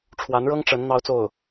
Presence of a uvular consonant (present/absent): absent